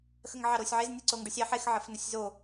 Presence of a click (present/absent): present